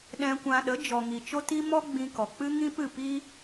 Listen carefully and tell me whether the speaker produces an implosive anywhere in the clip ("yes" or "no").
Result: yes